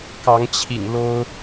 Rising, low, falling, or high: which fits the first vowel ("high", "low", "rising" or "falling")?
rising